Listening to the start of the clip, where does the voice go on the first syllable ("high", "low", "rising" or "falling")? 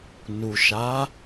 low